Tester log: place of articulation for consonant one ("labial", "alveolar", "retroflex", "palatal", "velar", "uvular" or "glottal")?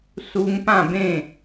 alveolar